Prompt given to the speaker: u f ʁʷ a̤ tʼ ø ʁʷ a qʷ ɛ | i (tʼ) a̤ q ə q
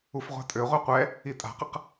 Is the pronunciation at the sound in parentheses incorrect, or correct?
correct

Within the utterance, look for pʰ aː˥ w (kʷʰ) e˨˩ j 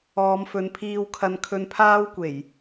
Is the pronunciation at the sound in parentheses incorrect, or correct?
incorrect: kʷ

